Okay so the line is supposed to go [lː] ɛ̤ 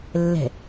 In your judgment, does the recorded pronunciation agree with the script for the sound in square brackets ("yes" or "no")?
yes